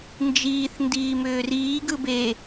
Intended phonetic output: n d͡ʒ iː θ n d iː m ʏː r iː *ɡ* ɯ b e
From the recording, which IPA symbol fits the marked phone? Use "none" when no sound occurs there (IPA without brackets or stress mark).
ɡ